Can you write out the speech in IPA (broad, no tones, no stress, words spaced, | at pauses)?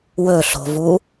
wɵɬo̤vu